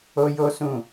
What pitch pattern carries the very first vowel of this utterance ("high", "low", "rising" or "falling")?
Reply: high